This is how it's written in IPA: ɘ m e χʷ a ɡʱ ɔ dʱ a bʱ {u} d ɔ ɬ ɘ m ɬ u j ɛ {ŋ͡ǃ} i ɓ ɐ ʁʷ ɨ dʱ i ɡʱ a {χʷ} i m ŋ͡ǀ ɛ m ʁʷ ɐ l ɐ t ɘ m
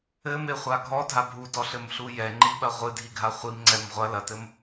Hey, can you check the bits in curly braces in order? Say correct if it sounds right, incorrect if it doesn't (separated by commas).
correct, correct, correct